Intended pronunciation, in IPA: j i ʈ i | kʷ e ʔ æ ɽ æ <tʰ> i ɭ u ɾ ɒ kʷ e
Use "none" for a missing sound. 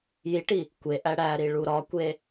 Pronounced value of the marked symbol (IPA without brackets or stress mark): ɾ